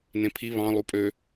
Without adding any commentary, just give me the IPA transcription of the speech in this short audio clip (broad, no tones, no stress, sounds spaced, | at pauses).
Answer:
n ẽ pʰ i β ɑ̃ lˠ u pʼ ø